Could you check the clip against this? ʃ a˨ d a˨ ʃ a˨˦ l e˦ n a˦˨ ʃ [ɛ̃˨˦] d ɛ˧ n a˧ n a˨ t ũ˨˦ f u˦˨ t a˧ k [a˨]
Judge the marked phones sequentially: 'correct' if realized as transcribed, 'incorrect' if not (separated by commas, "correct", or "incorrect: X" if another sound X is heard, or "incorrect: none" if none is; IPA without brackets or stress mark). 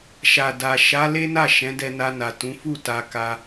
correct, incorrect: a˧